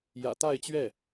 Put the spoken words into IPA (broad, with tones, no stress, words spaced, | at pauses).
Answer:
jä̰˨˩t̪a˥˧ɪ̯t͡ɕɥɛ˥˩